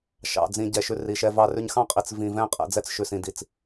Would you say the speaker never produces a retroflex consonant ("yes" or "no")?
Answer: yes